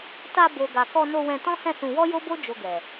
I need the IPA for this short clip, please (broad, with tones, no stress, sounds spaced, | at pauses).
t a˧ b o˨ ɡ a˨ k ɔ˧ n o˧ w ɛ̃˧ t ɔ̃˦ h ɛ̃˦˨ s ũ˧ w ɔ˦ j o˦ b o˦ d͡ʒ o˧ ɡ ɛ˨